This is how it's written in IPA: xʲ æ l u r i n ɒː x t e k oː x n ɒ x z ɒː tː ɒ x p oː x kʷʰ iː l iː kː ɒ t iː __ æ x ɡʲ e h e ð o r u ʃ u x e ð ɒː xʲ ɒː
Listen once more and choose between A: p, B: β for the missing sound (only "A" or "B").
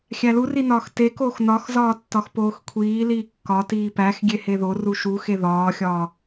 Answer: A